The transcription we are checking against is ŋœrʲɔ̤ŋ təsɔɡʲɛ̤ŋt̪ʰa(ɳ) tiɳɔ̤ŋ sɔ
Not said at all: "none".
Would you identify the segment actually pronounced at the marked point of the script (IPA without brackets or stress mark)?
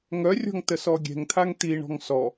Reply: ŋ